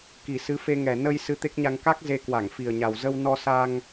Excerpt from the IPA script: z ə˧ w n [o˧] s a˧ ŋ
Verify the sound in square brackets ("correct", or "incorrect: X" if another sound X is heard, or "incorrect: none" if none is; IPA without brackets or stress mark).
incorrect: ɔ˧